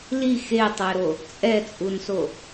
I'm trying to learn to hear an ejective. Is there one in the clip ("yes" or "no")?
yes